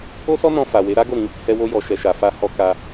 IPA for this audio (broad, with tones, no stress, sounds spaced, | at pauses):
o˦ s ɔ˦ n ɔ̃˧ f a˨ w e˨˦ ɾ a˦ ɡ o˦˨ ɾ ĩ˧ | h ɛ˧ w o˧ j ɔ˨ ʃ ɛ˨ ʃ a˨ f a˧ h ɔ˧ k a˧